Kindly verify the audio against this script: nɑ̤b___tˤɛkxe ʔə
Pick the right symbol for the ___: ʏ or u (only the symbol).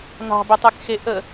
ʏ